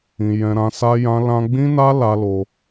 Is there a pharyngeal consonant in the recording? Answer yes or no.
no